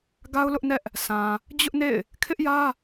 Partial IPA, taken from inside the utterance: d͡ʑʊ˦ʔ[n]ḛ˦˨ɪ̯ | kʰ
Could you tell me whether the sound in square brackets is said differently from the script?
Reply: no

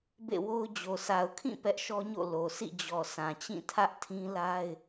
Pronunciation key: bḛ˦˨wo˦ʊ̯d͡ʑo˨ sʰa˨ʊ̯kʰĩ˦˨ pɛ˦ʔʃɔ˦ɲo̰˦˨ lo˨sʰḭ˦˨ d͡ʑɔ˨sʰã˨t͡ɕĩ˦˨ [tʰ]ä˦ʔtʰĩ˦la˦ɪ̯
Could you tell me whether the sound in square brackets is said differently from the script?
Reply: no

